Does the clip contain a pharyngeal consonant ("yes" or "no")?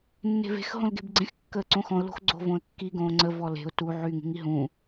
yes